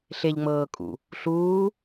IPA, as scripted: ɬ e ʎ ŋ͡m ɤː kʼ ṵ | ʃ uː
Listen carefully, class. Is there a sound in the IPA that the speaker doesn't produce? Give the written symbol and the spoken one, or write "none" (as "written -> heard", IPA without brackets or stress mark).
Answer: ʃ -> ɬ